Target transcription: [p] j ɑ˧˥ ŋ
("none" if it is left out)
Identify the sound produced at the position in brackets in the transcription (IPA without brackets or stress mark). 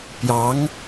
p